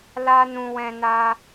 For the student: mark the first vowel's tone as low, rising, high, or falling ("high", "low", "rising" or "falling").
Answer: high